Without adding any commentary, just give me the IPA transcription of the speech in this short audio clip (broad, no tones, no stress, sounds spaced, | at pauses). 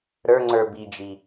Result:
ɾ ə˞ ŋ͡ǀ ə˞ b i d͡ʒ i